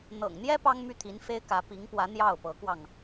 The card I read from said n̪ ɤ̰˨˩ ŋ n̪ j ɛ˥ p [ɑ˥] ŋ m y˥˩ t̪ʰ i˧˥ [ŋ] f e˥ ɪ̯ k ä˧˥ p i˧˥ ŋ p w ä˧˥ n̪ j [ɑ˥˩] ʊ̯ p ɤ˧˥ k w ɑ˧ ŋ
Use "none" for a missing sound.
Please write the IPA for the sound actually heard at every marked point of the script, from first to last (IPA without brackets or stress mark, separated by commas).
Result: ɑ˥, n, ɑ˥˩